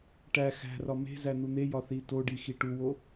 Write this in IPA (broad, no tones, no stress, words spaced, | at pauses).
ʈæ xæ̤rɒ me̤ zæn̪un̪ejɒ θitoɖi xiʈuwo